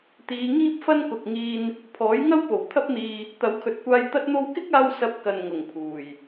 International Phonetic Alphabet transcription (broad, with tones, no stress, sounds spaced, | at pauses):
t̪ iː˨˧ ŋ iː˥ p̚ f ɐ˥ n k ʊ˨ k̚ ŋ iː˧ n | pʰ ɔː˨˥ j ŋ ɐ˥ w p o˨˩ w t̪ʰ ɐ˥ p̚ n̪ iː˧ | t̪ ɐ˨˥ w kʰ ɵ˨˥ t̚ kʷ aː˧ j t̪ ɐ˥ t̚ n̪ o˥ w k ɪ˥ k̚ aː˧ w s ɐ˧ p̚ k ɐ˨ n ŋ ʊ˨˩ ŋ pʰ uː˨˩ j